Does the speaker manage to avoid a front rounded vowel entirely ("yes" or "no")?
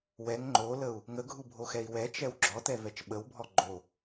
yes